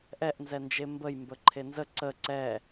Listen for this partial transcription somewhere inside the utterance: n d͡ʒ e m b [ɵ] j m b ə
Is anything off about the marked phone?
yes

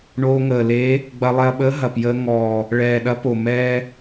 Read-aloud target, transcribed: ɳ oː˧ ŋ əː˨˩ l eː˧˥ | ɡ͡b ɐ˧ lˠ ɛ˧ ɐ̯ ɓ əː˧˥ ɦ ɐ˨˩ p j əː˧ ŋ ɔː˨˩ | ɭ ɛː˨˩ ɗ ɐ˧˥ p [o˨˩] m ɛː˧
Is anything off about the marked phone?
no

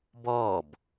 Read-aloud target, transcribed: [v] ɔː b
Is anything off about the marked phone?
yes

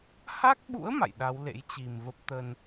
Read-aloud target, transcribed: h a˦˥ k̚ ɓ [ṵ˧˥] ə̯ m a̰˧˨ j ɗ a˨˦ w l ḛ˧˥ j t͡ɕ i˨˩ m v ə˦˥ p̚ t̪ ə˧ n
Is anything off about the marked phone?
no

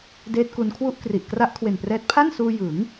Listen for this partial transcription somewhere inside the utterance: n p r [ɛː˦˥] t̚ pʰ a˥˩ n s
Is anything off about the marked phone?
no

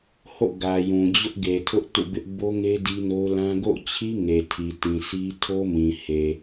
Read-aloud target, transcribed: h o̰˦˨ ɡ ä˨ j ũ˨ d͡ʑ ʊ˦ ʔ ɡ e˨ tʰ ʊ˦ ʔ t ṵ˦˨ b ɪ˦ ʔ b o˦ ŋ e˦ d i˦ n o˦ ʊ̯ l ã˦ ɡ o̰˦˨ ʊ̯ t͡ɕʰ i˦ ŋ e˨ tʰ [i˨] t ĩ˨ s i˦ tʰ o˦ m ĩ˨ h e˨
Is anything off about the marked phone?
no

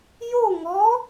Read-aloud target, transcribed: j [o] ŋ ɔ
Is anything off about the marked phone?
no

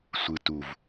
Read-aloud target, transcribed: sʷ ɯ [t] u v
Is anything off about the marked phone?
no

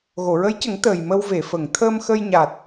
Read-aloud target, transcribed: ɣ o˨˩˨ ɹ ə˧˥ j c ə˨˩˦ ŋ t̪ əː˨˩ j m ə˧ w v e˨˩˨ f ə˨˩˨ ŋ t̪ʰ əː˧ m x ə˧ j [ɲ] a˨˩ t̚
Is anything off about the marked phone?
no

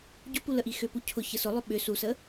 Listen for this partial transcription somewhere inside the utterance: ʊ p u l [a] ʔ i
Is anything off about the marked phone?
yes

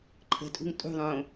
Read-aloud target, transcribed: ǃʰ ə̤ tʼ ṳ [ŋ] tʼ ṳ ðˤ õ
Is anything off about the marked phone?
no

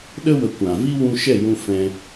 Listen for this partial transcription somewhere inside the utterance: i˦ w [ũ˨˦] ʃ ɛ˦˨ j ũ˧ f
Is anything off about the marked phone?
yes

